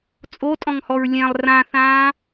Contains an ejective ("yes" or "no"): yes